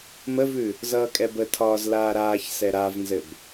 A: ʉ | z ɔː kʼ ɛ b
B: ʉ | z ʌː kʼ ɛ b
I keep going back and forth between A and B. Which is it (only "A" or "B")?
B